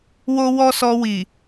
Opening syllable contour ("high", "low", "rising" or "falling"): high